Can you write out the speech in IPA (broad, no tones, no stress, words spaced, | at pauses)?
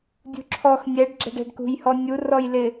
dʲṳǁʰɔx nʲɛɖ ɡ͡ǁɛ̤ɖɛ̤ɖkṳj hɔnʲu rɔjlɪ